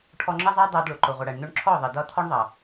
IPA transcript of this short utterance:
ʈʰ ɔ˧ ŋ͡ǁ ʌ˦ zˤ æ˦ dˤ æ˧ d ɭ ʊ˨ ǃ ʊ˨ ʁʷ ʌ˨ ɽ æ˨ ɳ n̪ ʊ˧ ɳ ǁʰ ɔ˦˨ ðˤ i˨ d ʌ˦ t̪ʰ ɔ˦ ɳ ðˤ ʌ˨

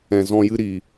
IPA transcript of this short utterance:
ɛ̃˨ z ɔ̃˧ j ɨ˧ ɾ i˨

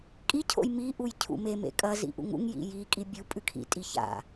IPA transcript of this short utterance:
kʼ i cʰ o̰ j m i ʔ u j cʰ ṵ m e m ḛ kʼ ɐ z ḭ ʔ ṵ ŋ ṵ ŋ j ḭ j i kʼ i bʲ u pʼ ʉ kʰ ḭ tʼ i ç a̰

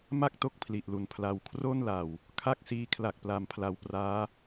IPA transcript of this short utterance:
m a˥˩ k̚ t o˦˥ k̚ pʰ l i˨˩ ʔ l u˨˩ n pʰ l a˨˩ w kʰ r o˥˩ n l a˨˩ w | kʰ a˥˩ k̚ s iː˧ kʰ l a˨˩ k̚ p l a˨˩ m pʰ l a˨˩ w p r aː˦˥

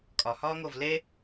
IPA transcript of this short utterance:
kʼ ɒ h ɒː ŋ oː v l e

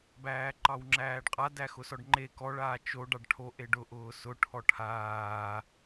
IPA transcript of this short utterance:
b æː ǃ ɑ w ŋ͡ǁ æː ɖ qʼ a d æ x ʊ s ɔ ɖ ŋ͡ǃ e k ɔ ɭ aː t͡ʃ o ɖ ɑ ɖ ʈʰ o ʔ e ɖ ʊ ʔ ʊː s ʊ ʈʰ ɔ ʈʰ aː

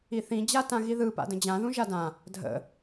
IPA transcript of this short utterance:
i θ ĩ d͡ʑ a t ã ɣ i ð ɯ p a̰ d ə̃ d͡ʑ ã ð ũ ʒ a d ã | dʱ ə̰

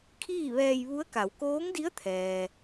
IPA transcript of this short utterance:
kʰ iː˥˨ ʋ ɛː˧ j ʋ u˧˥ ə̯ k a˩˧ w k oː˧˥ ŋ d i˧˥ ə̯ t̪ʰ ɛː˩

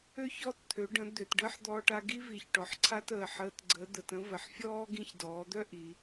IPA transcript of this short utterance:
ø˥ ç ɔ˧ t t̪ʰ ø˩˧ ɖ ə̃˩˧ d̪ ø˩ t ɖ əː˥ ħ d̪ ɔː˧ ʈ a˧ ɡ i˥ v i˩˧ ç ʈ ɔ˩ ħ ǀʰ a˥ t əː˩ ħ əː˧ t ɡ͡ǀ ə˧˥ d̪ ə˩˧ t ə̃˥ v ə˩ ħ fʲ ɔː˥ ɡ ĩ˧ ç d ɔː˩˧ d̪ œ˥ ʔ i˩˧

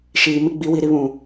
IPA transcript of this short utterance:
ʃ iː˨ m ɪ˦ ɡ͡b i˨˦ w i˨ ɾ i˦ β ũ˨

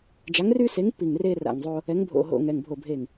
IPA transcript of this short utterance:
d͡ʒ a˨˥ ŋ r y˦ s e˨˥ ŋ p i˧˩ ŋ r eː˦ r a̰˧˩ ŋ zˤ oː˦ | ɛ˨˥ ŋ bʱ o̰˧˩ ɦ o̰˧˩ ŋ ɛ˩˧˩ ŋ bʱ o˧˩ bʱ eː˧˩ ŋ

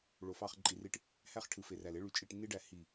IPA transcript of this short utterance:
ɭ o˨ f ɑ˦˨ χ ǃʼ i˧ r i˦ ʈ | h æ˦ χ ʈʰ ɯ˨ f e˨ r æ˨ l e˦ ɭ y˧ t͡ʃʼ i˦˨ ʈ nː i˦ ɖ æ˦˨ h i˦˨

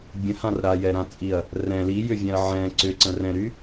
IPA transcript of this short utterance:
bʲ ə̃ h ã r ɾ a j ɛ ɾ ã t͡sʼ i ɐ̯ | r ɛ̃ l i j ʏ vʲ ɛ̃ ɐ̯ ʕ ɛ̃ ǀ ʏ ǀ ə̃ r ɛ̃ ɾ y

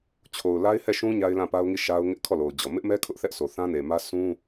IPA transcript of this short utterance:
t͡ɕʰ o˨ ʊ̯ l a˦ ɪ̯ h ɛ˦˨ ʃ ũ˦ ɲ a˦ ɪ̯ l ã˦˨ p a˦ ʊ̯ ŋ i˦˨ ʃ a˦ ʊ̯ ŋ ɪ˦ ʔ kʰ ɔ˦˨ l o˨ ʊ̯ d͡ʑ ɔ˨ m ɪ˦ ʔ m ɛ˦ kʰ ʊ˦ ʔ θ ɛ˦ ʔ sʰ o˨ θ ã˦ n e˨ m ä˦ s ũ˦

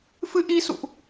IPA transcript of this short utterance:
f ɨ˧ ʔ i˧ s ṵ˧˨ ʔ

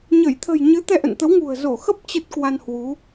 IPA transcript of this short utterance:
ɲ ə˧˩ j t̪ʰ ə̤˨˩ j ɲ ɨ˨˦ t̪ ɛ˧ ʔ ə̰˧˨ n t̪ ə˨˦ w ŋ ṳ˨˩ ə̯ z o˧˩ x ə˦˥ p̚ t͡ɕ ə˦˥ t̚ k w a˧ n h w u˨˦

